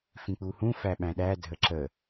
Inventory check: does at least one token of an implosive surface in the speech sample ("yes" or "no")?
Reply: yes